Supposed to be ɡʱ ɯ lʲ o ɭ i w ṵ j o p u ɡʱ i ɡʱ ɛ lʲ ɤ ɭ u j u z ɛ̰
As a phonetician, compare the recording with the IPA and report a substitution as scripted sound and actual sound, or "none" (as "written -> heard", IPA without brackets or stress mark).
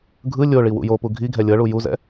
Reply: none